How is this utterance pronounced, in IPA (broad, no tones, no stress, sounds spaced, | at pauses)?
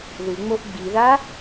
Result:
ð ɯ ŋ͡m o ʔ ɡ͡b i ð a